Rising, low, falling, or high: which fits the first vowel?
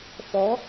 rising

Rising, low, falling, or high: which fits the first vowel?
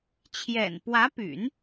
low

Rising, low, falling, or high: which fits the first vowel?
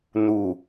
low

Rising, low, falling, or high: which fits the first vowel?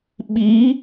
rising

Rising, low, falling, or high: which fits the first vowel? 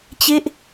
falling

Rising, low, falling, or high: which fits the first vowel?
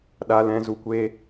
low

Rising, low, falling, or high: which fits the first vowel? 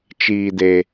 low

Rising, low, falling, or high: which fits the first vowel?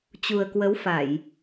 low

